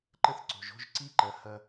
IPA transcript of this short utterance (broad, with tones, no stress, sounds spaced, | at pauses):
ǃ ə˥ θ ǀ o̤˩ ʒ o̤˥ ʒ ǀ i˥ ǃ ɐ˩˧ h ɐ˧